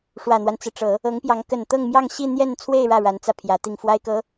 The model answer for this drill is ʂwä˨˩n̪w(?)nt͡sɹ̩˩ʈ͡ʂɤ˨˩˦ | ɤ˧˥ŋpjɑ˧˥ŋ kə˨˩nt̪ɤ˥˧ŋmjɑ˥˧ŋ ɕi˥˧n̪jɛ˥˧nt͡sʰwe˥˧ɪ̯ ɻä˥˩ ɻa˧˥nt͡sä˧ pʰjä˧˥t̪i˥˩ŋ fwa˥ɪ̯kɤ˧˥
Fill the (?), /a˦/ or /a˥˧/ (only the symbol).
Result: a˦